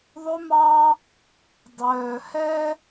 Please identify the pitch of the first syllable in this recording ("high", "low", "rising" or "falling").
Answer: high